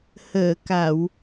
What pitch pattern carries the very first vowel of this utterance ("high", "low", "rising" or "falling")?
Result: low